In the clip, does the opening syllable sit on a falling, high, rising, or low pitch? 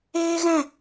high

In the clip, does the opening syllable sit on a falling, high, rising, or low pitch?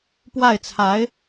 falling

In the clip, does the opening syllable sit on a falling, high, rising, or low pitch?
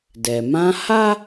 low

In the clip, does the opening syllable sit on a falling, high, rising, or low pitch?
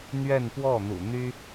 falling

